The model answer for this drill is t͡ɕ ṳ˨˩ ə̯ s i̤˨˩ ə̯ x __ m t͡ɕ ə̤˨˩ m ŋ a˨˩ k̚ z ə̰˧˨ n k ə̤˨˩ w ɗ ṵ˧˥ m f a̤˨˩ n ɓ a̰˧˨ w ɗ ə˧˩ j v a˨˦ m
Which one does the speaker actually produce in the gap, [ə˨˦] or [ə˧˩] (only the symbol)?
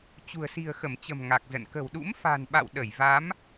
ə˧˩